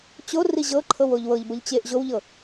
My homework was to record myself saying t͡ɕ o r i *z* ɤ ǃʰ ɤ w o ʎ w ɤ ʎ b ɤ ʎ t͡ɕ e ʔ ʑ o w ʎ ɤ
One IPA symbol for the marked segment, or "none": ʑ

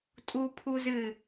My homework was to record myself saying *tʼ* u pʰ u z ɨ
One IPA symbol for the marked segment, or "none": tʼ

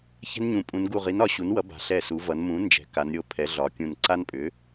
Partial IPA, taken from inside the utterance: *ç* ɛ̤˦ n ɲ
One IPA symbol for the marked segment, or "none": ç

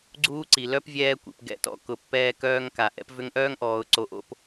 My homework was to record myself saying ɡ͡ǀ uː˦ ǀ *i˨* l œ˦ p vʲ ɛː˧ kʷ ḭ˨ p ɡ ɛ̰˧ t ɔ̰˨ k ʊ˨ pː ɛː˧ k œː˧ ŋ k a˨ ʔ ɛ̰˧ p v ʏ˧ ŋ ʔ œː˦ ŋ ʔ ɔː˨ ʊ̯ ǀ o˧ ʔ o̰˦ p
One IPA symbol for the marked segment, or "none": i˨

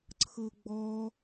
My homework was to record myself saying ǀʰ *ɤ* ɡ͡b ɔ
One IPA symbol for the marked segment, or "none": ɤ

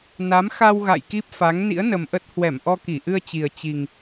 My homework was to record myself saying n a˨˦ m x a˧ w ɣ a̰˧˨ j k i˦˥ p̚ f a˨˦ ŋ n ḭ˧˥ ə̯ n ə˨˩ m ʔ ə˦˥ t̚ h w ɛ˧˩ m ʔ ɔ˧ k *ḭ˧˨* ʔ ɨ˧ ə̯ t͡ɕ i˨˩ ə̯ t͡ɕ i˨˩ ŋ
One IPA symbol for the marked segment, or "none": i˧˩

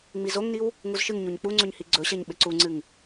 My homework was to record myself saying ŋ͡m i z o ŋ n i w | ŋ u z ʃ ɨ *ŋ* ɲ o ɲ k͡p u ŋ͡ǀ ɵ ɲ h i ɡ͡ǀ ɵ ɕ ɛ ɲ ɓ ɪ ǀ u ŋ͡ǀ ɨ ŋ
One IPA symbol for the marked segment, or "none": ŋ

